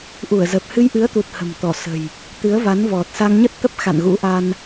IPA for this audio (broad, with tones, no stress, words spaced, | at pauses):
ʔu˧˩ə̯zə˨˩p̚ hɨ˧jʔɨ˨˦ə̯t̪u˨˩t̚ hə̤˨˩mt̪ɔ˧˩sə̤˨˩j | t̪ɨ˨˦ə̯va˨˦nvɔ˨˩t̚ sa˧ŋɲə˦˥t̚t̪ə˦˥p̚ xa̰˧˨nɣṵ˧˥ʔa˧n